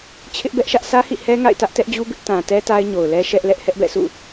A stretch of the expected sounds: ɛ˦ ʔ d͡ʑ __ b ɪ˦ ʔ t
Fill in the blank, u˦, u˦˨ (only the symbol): u˦